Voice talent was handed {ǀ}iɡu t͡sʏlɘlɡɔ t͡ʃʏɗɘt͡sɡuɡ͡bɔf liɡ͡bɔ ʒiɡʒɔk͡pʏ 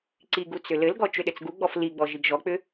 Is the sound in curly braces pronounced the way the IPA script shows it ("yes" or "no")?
yes